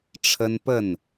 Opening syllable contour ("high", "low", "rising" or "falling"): high